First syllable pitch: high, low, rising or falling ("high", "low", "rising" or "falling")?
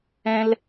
high